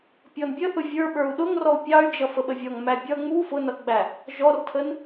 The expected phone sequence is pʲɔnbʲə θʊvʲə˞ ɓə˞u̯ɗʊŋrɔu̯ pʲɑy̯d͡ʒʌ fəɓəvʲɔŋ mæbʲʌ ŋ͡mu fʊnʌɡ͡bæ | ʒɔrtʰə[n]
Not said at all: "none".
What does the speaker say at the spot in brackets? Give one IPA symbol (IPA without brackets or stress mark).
n